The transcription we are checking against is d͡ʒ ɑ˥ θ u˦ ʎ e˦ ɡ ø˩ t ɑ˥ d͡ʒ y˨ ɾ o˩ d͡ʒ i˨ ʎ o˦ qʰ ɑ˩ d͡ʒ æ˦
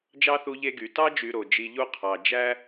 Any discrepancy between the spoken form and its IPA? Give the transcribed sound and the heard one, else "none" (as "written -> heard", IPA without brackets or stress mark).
ø˩ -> y˩